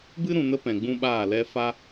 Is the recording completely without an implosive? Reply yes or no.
no